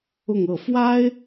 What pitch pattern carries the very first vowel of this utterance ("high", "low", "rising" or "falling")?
falling